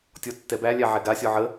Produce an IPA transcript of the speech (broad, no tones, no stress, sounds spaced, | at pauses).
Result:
tʲ ɔ tː ɛ b æ lʲ æ ʕ ɛ ɡ a sʲ ɔ ʕ ə